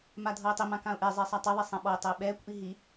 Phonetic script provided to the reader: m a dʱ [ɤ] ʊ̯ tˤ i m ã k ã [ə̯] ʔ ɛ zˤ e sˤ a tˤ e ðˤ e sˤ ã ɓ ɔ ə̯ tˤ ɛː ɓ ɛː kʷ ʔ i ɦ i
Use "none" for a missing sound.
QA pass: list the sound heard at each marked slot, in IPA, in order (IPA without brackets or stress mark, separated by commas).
ɤ, ʊ̯